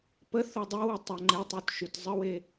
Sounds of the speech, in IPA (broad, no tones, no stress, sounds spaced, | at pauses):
p ə θ o dˤ e w ə tˤ ʏ ŋ͡ǃ e tˤ u t ʃ y t zˤ ə w e